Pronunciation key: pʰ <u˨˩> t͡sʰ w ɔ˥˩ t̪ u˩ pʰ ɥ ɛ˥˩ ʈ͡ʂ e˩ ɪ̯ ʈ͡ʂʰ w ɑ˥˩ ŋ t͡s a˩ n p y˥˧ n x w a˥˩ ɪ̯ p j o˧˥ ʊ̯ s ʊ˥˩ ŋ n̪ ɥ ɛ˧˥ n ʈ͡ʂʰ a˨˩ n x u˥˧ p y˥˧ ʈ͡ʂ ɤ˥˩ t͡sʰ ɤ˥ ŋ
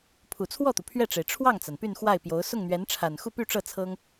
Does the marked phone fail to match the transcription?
no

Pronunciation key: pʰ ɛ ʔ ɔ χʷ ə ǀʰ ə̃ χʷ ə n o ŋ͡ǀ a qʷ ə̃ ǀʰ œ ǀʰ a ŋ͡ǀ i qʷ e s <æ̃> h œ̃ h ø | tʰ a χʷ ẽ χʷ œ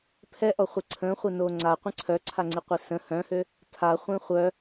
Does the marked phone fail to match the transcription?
yes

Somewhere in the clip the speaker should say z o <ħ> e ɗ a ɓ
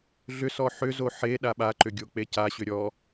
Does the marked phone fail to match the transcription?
no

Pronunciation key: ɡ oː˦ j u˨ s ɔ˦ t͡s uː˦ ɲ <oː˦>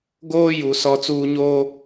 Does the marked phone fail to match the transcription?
no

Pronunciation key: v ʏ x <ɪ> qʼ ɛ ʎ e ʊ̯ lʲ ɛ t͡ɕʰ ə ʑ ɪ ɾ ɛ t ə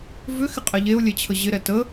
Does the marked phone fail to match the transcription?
no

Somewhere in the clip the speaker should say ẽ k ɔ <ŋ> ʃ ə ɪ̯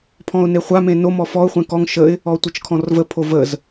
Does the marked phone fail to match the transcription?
no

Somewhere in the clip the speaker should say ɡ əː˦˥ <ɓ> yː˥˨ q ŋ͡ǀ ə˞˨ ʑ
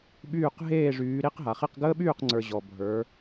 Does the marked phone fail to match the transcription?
no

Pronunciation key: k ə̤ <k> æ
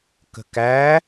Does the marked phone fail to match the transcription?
no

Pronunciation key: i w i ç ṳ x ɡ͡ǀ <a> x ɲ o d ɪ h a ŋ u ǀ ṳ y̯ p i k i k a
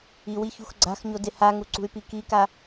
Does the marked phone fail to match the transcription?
yes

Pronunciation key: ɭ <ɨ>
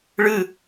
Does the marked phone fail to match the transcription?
no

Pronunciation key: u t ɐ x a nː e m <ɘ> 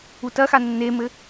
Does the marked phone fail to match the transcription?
no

